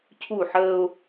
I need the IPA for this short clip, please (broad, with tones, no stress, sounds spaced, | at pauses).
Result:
cʰ u˦˨ ħ əː˦ ʊ̯